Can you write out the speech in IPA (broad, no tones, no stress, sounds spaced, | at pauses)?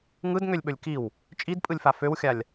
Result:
ŋ ɯ d ŋ ø lʲ ɓ ɵ lʲ k i w | t͡ʃʼ i d pʼ ɯ lʲ f a f ø w xʲ a lʲ